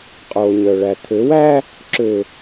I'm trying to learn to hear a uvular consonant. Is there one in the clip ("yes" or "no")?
yes